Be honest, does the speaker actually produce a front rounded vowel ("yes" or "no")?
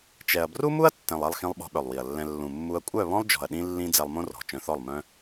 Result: yes